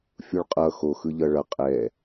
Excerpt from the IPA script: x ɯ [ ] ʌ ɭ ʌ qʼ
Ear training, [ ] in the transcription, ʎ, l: ʎ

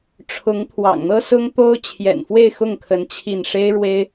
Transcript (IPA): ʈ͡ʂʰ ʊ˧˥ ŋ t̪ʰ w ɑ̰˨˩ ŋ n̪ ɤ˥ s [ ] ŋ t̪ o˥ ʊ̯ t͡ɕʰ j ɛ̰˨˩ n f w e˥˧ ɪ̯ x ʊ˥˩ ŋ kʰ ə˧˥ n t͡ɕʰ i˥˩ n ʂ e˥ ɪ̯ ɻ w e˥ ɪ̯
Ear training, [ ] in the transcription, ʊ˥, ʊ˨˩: ʊ˥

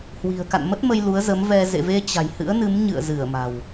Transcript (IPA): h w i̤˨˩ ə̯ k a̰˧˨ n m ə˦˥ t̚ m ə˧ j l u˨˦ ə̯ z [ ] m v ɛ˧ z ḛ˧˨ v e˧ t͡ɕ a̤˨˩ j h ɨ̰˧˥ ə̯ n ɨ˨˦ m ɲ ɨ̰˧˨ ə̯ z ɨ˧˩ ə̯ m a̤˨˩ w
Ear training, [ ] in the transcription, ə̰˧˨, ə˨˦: ə˨˦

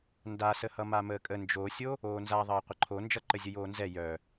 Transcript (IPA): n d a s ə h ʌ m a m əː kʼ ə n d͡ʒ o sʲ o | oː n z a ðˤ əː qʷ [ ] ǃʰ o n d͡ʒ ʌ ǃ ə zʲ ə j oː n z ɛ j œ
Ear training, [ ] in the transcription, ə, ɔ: ə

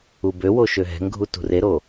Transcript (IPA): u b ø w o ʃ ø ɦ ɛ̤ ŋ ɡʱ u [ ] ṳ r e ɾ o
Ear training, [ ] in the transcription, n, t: t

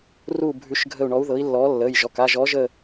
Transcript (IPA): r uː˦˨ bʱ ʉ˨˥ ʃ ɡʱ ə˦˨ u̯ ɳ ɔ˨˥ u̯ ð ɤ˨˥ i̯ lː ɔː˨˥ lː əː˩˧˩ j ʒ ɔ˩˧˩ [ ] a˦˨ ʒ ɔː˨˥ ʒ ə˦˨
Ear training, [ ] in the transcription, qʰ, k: k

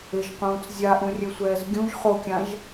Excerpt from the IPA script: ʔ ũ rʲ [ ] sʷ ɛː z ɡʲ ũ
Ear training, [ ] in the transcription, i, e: e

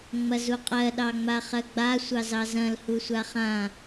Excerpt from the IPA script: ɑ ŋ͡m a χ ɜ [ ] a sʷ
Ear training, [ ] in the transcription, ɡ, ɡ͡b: ɡ͡b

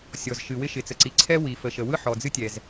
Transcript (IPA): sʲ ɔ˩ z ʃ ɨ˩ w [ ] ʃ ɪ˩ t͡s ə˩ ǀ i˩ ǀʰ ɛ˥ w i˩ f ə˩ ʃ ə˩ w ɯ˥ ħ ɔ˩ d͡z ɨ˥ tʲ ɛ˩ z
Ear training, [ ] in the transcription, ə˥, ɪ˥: ɪ˥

